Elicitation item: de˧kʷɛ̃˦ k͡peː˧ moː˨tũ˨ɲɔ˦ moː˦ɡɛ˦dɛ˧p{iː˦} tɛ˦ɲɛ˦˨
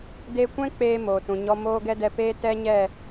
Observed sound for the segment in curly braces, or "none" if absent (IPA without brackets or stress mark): eː˦